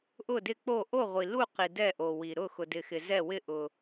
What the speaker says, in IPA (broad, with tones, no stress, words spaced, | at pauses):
ʔʊ˧˩dɪ˧˩k͡po˧˩ ʔo˧˩ʁʷi˩lu˧˩ qi˩dɛ˧˩ ʔo˩wi˩ ɾʊ˧˩ xʊ˩dɪ˩xɪ˩zɛ˧˩ wɪ˧˩ ʔʊ˩